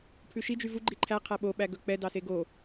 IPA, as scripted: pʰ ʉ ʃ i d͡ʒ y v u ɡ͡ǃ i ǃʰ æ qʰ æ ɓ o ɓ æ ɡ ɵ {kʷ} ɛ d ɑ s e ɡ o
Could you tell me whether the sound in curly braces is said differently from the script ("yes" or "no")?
yes